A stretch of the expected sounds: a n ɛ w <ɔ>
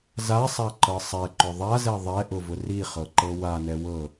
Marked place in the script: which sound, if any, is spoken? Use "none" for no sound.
ɤ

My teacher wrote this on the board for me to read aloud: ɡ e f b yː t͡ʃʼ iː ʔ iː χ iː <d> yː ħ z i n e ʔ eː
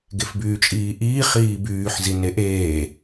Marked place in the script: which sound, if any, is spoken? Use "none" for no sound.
b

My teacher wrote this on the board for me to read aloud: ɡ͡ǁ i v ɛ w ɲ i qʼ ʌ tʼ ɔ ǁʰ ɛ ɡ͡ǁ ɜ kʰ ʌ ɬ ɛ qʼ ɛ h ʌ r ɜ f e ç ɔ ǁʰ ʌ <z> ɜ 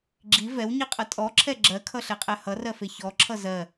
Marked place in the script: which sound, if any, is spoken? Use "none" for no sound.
z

